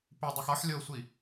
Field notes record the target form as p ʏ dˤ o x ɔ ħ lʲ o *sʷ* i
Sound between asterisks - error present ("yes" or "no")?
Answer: no